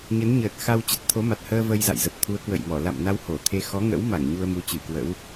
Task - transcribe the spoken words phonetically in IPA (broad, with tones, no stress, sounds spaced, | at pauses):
ɲ ə˨˦ n ɲ əː˨˩ t̚ x a˧ w t͡ɕ ə˨˩ t̚ t̪ʰ o˨˦ m a˨˩ t̚ h əː˧ v ə˧ j z a̰˧˨ j z ə˨˩ p̚ t̪ʰ u˨˦ ə̯ k w ə̰˧˨ j m ɔ˧˩ l a̰˧˨ m n a˧ w h o˧˩ t̪ʰ e˧ x ɔ˨˦ ŋ ə̰˧˥ w m a˧˩ ŋ ɲ u˧ ə̯ m u˨˦ t͡ɕ ɨ˧˩ k w ə̰˧˥ w